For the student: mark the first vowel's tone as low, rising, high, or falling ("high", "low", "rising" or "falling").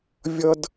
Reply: high